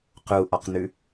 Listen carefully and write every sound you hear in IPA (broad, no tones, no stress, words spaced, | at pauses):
quʔɔqnʉ